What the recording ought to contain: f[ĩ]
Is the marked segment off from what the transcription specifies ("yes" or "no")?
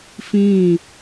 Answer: no